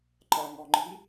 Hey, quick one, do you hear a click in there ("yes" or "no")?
yes